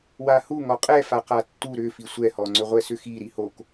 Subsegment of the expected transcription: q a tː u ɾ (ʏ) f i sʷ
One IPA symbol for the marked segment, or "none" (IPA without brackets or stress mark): ʏ